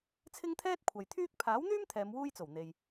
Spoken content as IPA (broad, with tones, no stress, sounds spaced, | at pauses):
t͡sʰ ɪ˥ ŋ t̪ʰ ɛː˥ t̚ kʷʰ ɐ˨ j t̪ʰ yː˥ k̚ pʰ aː˨˥ w n̪ yː˥ m t̪ʰ ɛː˨˧ m w uː˥ j t͡s o˨˩ w n̪ e˨ j